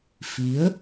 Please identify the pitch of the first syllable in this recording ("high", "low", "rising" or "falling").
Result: rising